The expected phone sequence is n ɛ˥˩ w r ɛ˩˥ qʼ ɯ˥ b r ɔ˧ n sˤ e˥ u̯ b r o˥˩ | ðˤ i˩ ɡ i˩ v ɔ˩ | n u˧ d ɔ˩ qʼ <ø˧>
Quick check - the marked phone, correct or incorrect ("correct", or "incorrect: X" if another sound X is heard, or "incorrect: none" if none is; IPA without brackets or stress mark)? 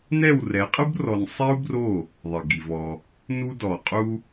incorrect: u˧